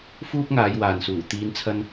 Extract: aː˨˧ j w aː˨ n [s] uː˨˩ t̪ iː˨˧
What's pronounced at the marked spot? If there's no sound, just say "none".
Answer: s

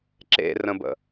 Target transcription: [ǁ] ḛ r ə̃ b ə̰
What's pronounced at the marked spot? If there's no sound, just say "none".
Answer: ǁ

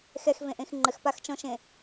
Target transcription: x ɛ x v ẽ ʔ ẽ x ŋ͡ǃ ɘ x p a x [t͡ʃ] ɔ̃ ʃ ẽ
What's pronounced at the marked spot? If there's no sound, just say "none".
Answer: t͡ʃ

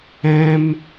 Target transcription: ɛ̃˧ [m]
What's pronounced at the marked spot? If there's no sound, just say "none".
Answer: m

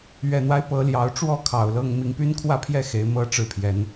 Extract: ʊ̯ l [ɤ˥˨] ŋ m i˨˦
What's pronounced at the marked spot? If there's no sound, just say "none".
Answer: ɤ˥˨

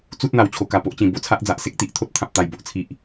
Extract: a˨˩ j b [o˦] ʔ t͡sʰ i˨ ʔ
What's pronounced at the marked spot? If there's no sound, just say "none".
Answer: o˨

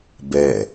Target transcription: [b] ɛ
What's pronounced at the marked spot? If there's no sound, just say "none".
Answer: b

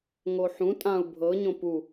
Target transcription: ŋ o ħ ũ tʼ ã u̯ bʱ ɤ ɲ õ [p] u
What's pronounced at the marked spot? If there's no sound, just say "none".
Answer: p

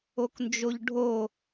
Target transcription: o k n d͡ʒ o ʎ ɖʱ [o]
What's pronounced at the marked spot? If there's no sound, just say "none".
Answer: o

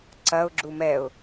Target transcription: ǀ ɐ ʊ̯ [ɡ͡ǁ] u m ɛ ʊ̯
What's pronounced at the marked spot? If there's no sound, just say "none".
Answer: ɡ͡ǁ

